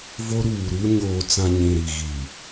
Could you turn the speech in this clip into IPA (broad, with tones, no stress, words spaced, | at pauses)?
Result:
vo˦ɾuː˨ɾu˦ ɲoː˨t͡sã˨ ɲĩ˨ɾi˨ ɣi˨